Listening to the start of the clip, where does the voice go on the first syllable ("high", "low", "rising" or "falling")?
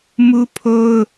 high